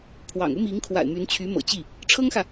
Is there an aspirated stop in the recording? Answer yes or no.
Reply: yes